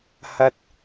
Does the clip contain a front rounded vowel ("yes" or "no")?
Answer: no